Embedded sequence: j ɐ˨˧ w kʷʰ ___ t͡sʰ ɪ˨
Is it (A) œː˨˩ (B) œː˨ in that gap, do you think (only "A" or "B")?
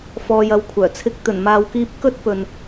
A